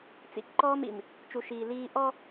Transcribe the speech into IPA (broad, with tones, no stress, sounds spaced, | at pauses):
t͡s ḭ˨ k ǃ ɔː˦ m ḭ˨ m | t͡ʃ u˨ ʃ iː˨ l iː˦ ʔ ɔ˦